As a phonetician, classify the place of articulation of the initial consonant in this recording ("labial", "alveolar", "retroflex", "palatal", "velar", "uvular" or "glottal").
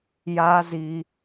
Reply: palatal